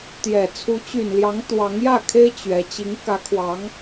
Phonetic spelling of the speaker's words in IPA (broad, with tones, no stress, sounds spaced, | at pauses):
t̪ j ɛ˨˩ t͡sʰ u˧˥ t͡ɕ y˨˩ n l j ɑ˧˥ ŋ t̪ w ɑ˧˥ ŋ j ä˥˩ kʰ e˥ ɪ̯ t͡ɕ ɥ ɛ˧˥ t͡ɕ i˧˥ ŋ k ä˧˥ kʰ w ɑ˧˥ ŋ